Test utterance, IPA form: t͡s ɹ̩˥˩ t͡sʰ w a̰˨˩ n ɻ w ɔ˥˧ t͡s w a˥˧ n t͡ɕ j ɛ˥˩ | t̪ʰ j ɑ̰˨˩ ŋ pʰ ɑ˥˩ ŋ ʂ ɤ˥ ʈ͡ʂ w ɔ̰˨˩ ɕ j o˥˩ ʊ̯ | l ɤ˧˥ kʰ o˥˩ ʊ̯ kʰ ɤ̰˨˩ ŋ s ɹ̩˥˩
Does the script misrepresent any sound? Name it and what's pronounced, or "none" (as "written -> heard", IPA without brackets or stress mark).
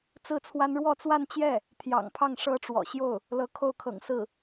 a̰˨˩ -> a˥